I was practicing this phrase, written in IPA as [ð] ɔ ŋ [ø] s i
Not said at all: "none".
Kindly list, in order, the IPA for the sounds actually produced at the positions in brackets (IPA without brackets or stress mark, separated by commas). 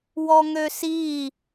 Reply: w, ø